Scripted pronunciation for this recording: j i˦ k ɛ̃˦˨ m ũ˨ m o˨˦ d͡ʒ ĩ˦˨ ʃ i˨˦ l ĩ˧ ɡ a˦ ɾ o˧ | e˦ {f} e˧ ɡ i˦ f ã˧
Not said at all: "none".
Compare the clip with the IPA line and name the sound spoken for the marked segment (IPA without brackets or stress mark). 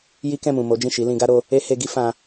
h